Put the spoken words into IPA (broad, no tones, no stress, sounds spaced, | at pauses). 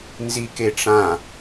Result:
n z i k e ʈ͡ʂ ã